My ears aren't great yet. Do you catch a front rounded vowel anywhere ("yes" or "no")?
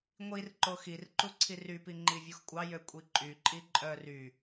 yes